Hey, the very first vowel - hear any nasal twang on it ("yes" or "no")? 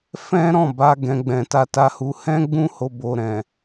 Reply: yes